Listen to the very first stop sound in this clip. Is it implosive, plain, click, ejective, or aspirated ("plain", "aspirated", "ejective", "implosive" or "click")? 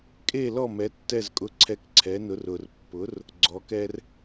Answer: ejective